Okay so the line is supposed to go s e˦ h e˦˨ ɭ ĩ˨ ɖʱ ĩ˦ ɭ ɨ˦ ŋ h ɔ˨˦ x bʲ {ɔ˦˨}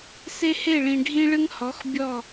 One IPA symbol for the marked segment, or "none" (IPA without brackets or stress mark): ɔ˦˨